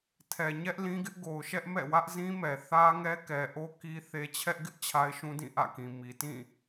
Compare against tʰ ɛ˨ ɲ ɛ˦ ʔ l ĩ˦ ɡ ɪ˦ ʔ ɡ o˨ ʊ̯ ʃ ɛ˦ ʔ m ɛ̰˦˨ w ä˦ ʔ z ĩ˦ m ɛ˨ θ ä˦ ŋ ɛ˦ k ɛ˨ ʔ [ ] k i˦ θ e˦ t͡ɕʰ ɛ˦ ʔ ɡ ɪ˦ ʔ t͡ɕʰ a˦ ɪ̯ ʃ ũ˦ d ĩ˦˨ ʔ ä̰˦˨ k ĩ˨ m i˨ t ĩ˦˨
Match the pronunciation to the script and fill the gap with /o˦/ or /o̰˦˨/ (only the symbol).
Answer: o˦